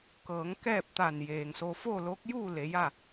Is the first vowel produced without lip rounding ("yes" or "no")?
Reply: yes